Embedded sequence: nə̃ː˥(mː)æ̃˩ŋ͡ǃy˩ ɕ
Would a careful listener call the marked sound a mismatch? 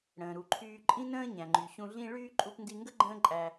yes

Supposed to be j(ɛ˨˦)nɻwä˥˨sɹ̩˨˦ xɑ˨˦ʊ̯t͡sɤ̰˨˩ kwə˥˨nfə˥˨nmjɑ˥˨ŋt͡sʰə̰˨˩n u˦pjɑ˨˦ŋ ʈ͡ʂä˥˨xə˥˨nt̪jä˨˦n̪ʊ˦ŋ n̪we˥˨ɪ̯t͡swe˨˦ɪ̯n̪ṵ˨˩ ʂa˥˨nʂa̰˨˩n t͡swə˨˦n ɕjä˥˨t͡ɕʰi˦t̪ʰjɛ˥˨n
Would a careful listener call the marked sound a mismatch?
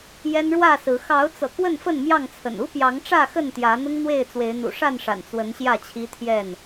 yes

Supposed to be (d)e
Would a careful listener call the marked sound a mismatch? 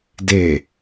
no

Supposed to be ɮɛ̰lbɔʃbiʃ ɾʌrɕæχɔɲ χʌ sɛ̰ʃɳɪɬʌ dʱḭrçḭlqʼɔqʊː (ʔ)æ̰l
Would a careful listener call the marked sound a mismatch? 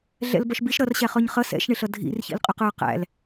yes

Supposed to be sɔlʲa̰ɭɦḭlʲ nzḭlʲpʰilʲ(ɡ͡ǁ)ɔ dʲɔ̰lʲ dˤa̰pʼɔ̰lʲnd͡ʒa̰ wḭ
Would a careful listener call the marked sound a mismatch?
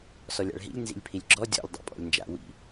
no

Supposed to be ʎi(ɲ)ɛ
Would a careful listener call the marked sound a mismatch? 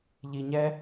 no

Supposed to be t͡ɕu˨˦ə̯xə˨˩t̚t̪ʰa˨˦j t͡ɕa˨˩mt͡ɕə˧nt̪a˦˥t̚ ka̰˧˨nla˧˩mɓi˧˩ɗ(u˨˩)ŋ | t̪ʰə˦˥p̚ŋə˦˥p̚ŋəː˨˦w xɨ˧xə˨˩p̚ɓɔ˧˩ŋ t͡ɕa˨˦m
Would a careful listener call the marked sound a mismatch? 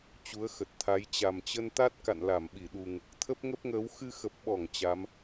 no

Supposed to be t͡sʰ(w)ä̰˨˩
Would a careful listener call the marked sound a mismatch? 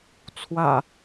no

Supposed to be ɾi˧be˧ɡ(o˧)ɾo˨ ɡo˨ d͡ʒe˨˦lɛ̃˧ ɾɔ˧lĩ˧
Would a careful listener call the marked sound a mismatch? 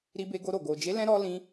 no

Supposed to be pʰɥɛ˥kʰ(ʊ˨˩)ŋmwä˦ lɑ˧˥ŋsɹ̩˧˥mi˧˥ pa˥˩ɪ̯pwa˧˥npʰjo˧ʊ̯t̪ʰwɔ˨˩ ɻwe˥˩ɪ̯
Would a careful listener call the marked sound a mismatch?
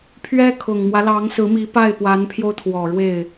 no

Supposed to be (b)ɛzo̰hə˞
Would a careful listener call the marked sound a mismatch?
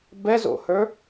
no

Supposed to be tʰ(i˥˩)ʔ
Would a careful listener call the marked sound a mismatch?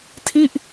no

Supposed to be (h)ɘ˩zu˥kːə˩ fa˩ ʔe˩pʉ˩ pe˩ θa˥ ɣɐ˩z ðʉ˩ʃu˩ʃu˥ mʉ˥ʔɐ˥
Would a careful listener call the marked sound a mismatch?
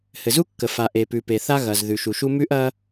no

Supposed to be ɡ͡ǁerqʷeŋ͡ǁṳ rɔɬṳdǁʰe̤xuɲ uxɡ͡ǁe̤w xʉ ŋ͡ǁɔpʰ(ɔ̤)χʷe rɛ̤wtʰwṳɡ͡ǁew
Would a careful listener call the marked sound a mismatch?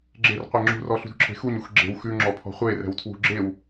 no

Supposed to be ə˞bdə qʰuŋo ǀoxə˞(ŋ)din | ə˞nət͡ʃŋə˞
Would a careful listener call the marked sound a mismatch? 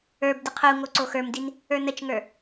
yes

